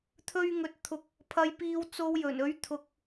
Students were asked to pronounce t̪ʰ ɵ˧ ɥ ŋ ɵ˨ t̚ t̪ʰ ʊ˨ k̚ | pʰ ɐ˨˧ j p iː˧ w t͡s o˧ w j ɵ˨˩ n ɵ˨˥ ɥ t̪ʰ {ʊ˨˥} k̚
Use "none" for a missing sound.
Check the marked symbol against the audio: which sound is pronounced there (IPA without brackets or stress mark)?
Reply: ʊ˨